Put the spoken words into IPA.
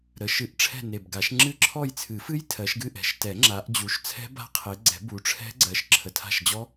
ɾ ə˨˦ ʃ ɨ˨˩˦ ʔ ʈ͡ʂʰ ɛ̤˦˨ n e˨˩ b ɡ a˨˩˦ ʃ ŋ͡ǁ ɨ˦˨ ǁʰ ɔ˦˨ j t͡sʰ ɨ˨˩˦ f ɨ˦˥ j tʰ ɜ˨˦ ʃ ɡ ɨ˦˨ ʔ ɛ̤˨˩ ʃ t ɛ˨˩˦ ŋ͡ǁ a˨˦ ʔ d͡ʑ u˨˦ ʃ t͡sʰ ɛ̤˦˥ b a̤˦˥ qʰ e˨˦ ɡ͡ǀ ɛ̤˨˩˦ b u˨˦ ʈ͡ʂʰ ɛ̤˦˥ ɡ͡ǀ ɜ˨˦ ʃ ǁʰ ə˨˩ tʰ a̤˦˨ ʃ d͡ʑ ɔ˦˥

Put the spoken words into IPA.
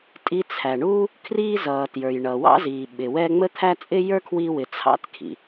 tʼ i˧ t͡sʰ æ˩ ɳ uː˥ | kʰ r iː˧ z ʌː˩ t j ə˞˩ j ɳ ʌː˩ w ɑ̰˥ z iː˩ ɓ ɪ˩ w ɛ˧ ŋ͡m ə˥ t̪ʰ æ˥ t͡sʼ ɪ˥ j ə˞˥ kʰ w iː˧ w ɪ˩ t͡sʰ ɑ̰˥ t kʰ ḭ˩

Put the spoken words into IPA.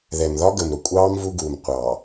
ð ɛ˨ m ð ɒ˦ ɡ ə˨ m ɾ ʊ˨ kʷʼ ɑː˦ m v u˦ ɡ uː˨ m qʷ ɑː˨

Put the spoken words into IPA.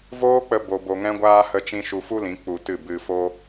v oː˦ k͡p ə˧ b o˧ b o˧ ŋ ɛ̃˦ ɡʷ aː˦ h ə˧ t͡ʃ ĩ˧ ʃ u˧ f u˦ l ĩ˨˦ k͡p u˧ t ɨ˦˨ b ɨ˧ f o˧

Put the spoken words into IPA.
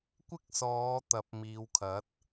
kʷ ɪ˥ k̚ s ɔː˨˧ t̪ ɐ˨˥ p̚ m iː˨˧ w kʰ ɐ˨˥ t̚

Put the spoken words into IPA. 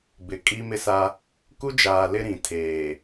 b ɪ˨ kʼ i˦ m ɪ˦ s a˦ | k u˦ d͡ʒ aː˨ l ɪ˦ ɾ ĩ˨ tʰ eː˨

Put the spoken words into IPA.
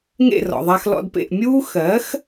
ŋ ḛ˥˩ r ɔ̰˩ ðˤ a˧ x l ɔ̰˧ d p ḛ˥˩ ʔ mʲ uː˥ x ɜ˩˥ x

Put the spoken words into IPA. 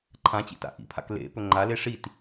ǃʰ ã t͡ɕ ḭ t a̰ ʔ ḭ pʰ a̰ k l ḛ p ɵ ŋ͡ǃ a l e ʂ i t

